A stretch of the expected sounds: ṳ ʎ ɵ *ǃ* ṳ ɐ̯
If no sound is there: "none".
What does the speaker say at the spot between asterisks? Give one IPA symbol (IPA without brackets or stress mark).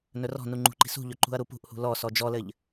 ǃ